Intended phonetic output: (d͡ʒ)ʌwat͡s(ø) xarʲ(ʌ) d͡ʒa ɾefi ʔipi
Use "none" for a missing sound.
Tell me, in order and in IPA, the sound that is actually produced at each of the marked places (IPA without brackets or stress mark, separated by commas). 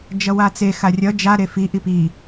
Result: d͡ʒ, e, ʌ